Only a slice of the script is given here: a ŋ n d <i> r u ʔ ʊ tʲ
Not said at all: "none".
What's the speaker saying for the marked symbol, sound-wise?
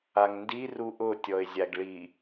i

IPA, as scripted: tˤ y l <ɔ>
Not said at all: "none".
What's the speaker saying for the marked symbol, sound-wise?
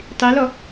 ɔ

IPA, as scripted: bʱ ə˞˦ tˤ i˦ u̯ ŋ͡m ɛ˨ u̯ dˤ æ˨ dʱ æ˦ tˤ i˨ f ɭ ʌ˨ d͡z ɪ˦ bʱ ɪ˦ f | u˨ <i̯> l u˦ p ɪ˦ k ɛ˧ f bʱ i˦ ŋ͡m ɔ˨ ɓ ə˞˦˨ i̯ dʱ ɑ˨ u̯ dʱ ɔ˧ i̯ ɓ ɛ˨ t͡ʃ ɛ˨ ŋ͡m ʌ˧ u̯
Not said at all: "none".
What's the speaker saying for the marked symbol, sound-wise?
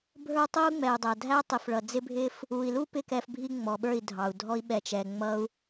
i̯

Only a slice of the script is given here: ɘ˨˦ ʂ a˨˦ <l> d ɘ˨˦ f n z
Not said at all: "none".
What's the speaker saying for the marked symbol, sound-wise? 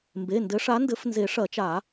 n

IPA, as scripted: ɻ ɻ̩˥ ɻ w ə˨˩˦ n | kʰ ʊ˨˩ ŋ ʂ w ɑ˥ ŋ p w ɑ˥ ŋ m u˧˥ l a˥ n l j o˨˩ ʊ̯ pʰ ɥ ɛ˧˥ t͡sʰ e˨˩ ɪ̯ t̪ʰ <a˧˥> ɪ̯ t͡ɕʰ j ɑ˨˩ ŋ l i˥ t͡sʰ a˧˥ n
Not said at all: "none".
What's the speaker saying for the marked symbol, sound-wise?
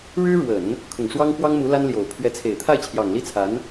a˥˩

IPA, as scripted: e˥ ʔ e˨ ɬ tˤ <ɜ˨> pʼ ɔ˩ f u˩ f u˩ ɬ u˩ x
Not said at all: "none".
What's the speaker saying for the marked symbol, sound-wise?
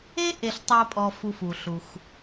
ɜ˨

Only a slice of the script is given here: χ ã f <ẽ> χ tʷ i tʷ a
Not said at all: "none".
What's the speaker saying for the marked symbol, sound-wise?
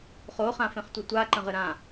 ẽ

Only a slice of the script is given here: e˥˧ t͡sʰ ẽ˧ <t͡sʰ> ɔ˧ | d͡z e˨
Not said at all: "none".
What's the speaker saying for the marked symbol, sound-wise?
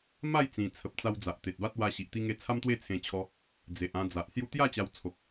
t͡ɕʰ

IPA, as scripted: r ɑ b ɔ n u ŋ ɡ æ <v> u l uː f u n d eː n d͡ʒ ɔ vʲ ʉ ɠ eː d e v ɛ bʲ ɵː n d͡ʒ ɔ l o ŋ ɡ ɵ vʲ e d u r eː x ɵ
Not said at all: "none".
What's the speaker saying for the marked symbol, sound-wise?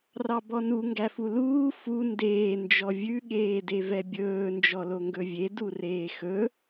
f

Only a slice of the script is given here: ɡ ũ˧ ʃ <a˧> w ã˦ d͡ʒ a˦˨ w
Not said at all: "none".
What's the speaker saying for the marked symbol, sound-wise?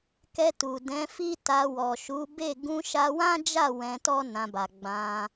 a˧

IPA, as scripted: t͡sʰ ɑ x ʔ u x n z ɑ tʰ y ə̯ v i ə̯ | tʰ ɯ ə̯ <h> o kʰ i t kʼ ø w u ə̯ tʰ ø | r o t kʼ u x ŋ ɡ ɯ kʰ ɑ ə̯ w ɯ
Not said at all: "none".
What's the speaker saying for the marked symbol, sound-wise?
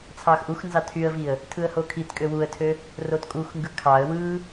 h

